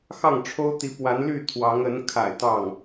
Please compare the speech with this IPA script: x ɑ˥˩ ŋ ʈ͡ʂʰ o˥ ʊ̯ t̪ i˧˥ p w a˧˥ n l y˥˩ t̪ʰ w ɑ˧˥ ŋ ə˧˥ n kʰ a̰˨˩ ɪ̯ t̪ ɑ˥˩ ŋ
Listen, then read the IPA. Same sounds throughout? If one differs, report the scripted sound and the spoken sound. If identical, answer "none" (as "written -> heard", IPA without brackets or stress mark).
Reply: none